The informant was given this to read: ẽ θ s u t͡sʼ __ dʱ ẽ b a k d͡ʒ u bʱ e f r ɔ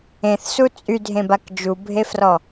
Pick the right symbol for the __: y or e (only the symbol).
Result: y